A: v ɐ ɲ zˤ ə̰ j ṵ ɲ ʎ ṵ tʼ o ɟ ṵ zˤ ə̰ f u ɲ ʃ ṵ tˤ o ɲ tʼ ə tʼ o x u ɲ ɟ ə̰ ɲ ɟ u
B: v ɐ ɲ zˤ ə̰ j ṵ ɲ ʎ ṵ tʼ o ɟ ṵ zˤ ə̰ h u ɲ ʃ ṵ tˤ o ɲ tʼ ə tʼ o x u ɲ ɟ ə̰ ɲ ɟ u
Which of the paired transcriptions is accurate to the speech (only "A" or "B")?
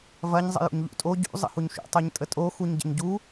B